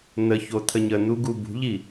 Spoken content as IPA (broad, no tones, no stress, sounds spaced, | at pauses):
n̪ ə ç o t̪ʰ ə ɲ ə n̪ u ɡ u b ṳ ʎ i